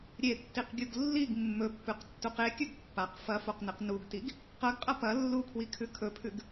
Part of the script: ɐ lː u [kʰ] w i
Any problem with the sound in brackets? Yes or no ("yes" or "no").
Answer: no